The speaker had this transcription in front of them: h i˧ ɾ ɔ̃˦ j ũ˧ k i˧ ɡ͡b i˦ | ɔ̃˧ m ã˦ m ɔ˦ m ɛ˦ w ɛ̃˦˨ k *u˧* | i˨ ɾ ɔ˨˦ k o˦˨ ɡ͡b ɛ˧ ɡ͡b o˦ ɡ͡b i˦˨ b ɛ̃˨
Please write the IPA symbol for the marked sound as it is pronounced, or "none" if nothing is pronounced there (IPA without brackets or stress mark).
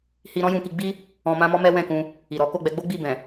ũ˧